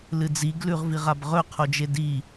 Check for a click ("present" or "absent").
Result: absent